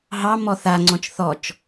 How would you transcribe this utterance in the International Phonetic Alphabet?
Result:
ɦ ɑ m ɔ θ a ŋ͡ǀ ɔ̃ t͡ʃ θ ɔ t͡ʃ

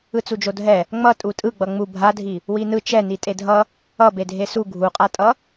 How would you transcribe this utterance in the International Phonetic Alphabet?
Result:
ɯ t͡s u d͡ʒ o dʱ ɛ | ŋ͡m ʌ tʼ u tʼ ɯ ɡ͡b ʌ ŋ͡m u bʱ a dʱ i | w i n ɯ t͡ʃ ɛ n i tʼ e dʱ ʌ | ʌ b e dʱ e s u ɡʱ u qʼ a tʼ ʌ

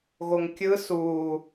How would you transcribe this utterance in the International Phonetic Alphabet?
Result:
ɣ o ŋ kʲ ɯ s uː

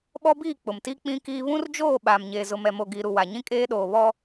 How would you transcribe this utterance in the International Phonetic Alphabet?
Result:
ɓ ɔ˦ b iː˦˨ k͡p ʊ˨ m t i˦ k͡p ĩ˦ k iː˦ β ũ˦ r d͡ʒ oː˦˨ ɓ aː˨ m ɲ eː˨ z ʊ˨ m ɛ˨ m o˨ ɡ iː˨ ɾ u˨ w a˨ ɲ ĩ˦ kʼ eː˦ ɗ oː˨ β ɔ˦

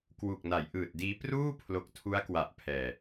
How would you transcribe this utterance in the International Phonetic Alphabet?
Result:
k w u˨˩ k̚ n a˩˦ j ʔ ɯː˨˩ t̚ d iː˦˥ p r uː˥˩ pʰ l o˨˩ k̚ tʰ u˦˥ a̯ k w a˨˩ ʔ pʰ ɛː˨˩

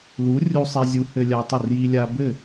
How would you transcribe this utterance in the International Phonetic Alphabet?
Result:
l u˩˥ rʲ u˧ sˤ ɛ˧ zʲ u˩˥ h ɘ˧ lʲ a˧ tˤ ɘ˥˩ r j i˧ lʲ a˧ b ɘ˥˩

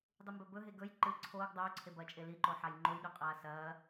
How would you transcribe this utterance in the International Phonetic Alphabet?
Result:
dˤ u m b ɵ b ɵ ɦ e ɡ ɵ j ǃ ɨ ǀʰ oː ɡ dˤ oː ǀʰ e b ɐː t͡ʃʼ e l i ǃ o ħ a j ŋ͡ǃ o j ɗ ʉ qʼ aː s ɐː

